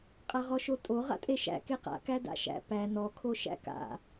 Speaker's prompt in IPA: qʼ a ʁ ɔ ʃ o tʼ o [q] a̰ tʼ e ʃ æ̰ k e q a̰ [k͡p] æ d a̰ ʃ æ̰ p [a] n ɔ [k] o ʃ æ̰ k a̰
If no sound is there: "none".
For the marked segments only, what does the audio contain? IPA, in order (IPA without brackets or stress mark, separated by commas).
ʁ, k, æ, kʰ